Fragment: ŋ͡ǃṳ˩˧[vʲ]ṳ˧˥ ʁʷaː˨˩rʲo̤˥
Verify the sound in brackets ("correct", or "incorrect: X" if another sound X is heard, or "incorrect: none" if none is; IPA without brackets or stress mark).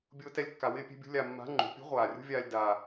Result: incorrect: pʲ